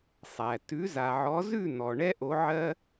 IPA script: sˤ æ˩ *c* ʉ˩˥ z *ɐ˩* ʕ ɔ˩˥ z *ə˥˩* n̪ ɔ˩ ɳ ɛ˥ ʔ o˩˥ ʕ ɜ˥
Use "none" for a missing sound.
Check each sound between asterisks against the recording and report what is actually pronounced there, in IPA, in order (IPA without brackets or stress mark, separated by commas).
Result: t, a˩, ʉ˥˩